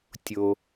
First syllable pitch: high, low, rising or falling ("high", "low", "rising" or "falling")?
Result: low